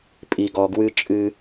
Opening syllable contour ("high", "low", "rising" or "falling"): low